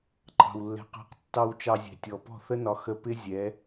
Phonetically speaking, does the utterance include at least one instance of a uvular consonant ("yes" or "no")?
yes